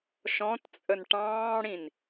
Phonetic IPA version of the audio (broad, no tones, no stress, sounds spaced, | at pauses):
ʃ ɔ̃ t t͡sʼ ə n ʈ ɑ̃ː ɽ ĩ n